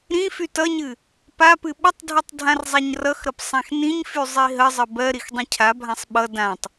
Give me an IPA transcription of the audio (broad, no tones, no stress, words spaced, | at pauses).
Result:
ɾĩ fytʌɲɨ | papɨ ɓətˤdʱɨtˤ dʱãrzˤaɲrʌxɾʌp sˤãxnĩɲfy zˤiɦəzˤə bɜɾix dˤĩcʰabʱãsˤ ɓʌ dãtˤ